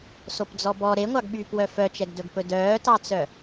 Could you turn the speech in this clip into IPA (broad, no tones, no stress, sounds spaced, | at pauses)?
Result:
s o p d͡z ɔ b ɔ ɾ e ŋʷ ɑ ɡ ɓ yː p w œ f œ t͡ʃ ɛ ɡ d ɵ ɡ p ɵ d œː t ɑ t͡s œ